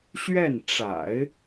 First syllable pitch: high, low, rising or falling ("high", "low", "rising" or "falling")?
falling